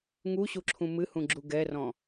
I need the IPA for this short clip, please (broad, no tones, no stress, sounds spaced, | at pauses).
ŋ u ɕ u ǁʰ ũ m ɨ h ũ ɡ͡ǁ u ɡ ɛ r ɔ̃